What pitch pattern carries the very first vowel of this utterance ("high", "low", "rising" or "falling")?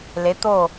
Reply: rising